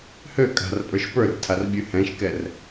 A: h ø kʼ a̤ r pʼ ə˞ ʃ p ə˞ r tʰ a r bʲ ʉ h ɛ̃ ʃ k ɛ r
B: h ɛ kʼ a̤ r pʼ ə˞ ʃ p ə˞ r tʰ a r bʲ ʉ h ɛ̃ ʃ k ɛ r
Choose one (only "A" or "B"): A